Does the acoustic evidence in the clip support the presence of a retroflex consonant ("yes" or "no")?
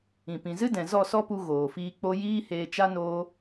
no